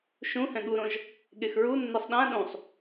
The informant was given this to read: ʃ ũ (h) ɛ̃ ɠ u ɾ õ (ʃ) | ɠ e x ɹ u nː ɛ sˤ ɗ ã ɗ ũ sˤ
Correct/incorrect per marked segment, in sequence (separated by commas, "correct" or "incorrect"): correct, incorrect